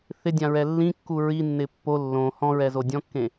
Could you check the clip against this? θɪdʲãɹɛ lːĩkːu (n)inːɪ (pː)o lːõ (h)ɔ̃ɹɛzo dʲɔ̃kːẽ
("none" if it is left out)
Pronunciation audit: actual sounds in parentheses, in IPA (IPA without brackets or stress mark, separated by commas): ɹ, pː, h